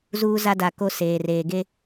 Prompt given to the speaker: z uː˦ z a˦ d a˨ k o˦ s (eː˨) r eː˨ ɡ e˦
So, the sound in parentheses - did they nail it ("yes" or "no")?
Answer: yes